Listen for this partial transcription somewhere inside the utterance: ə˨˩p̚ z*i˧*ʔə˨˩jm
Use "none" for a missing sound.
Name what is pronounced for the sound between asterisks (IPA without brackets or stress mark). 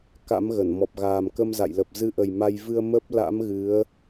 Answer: ɨ˧